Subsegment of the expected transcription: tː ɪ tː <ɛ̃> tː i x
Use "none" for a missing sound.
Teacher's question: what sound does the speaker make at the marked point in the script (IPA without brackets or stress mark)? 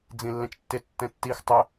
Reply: ɛ̃